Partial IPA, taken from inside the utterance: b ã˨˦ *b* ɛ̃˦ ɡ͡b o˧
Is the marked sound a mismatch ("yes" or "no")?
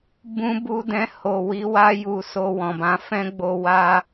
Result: yes